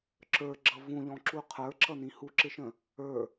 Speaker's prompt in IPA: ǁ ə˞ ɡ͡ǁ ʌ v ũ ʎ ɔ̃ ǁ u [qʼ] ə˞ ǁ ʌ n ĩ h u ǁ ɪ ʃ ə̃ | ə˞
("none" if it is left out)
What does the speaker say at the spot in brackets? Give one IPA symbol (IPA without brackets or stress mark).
qʰ